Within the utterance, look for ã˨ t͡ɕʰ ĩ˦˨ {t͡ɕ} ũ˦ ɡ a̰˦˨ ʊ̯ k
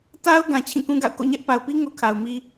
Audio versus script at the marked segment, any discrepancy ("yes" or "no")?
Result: yes